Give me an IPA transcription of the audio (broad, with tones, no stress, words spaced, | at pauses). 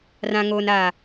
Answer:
rã˨ŋoː˨naː˨